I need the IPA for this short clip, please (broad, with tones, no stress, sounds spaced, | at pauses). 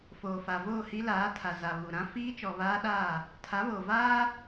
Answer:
f oː˨ f a˨ v oː˦˨ h i˦ l aː˨˦ tʰ a˨ z a˨ β u˨ ɾ ã˦ f iː˦ t͡ʃ ɔ˨ β aː˦ ɗ aː˦˨ | tʰ a˨˦ β oː˨ v aː˦